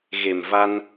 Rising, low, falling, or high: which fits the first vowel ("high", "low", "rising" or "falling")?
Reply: low